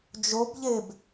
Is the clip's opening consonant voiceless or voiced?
voiced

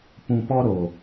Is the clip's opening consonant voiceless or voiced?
voiceless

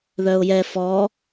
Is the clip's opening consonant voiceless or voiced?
voiced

